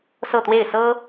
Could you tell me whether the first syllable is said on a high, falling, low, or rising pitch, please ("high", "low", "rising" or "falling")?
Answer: falling